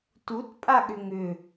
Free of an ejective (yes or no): no